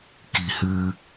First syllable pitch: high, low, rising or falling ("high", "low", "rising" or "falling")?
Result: low